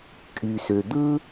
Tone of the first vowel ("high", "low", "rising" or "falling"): low